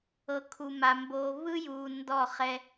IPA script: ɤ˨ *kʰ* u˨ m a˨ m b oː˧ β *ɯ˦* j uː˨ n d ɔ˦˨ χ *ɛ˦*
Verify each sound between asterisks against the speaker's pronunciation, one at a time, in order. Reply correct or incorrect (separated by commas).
correct, correct, correct